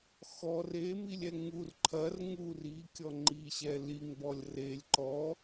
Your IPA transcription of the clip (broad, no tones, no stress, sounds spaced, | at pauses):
x ɔ r e m i lʲ ɛ ŋ u r ǃʰ ɐ r ŋ u r i kʲ ɔ ŋ͡ǃ i ɕ ɛ l i ŋ b ɔ lʲ r e lʲ ǃ ɔ